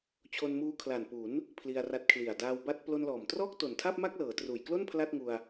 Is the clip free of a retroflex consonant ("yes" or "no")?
yes